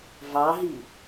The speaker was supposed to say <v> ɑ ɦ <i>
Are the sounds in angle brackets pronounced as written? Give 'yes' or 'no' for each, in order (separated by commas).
yes, yes